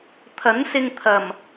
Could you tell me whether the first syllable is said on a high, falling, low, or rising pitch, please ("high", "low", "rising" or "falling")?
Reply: rising